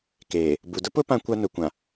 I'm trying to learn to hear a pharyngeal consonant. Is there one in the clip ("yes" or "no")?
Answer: no